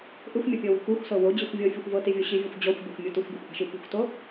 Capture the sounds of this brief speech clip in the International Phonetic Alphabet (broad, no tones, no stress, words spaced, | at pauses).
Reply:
ʔɯxʷmʲɔpʲɤwi̤ xʷixʷsɤ wod͡ʑixʷ vʲɤfʲɯxʷ vɤtivʲo ɕivʲexʷ d͡ʑɔxʷbʲoxʷmʲu tuxʷbʲuxʷʔa̤ʃi pṳxʷto